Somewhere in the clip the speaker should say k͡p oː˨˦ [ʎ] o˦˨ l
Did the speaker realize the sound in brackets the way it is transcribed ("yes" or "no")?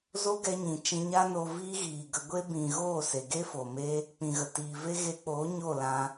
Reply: no